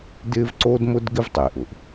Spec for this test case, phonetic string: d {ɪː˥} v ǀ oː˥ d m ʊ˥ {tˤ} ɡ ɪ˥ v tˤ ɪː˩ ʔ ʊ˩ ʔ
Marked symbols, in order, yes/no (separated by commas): yes, no